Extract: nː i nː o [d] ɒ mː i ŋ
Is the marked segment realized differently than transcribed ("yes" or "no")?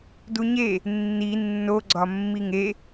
yes